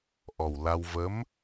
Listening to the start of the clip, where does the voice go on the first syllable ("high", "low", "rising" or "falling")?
low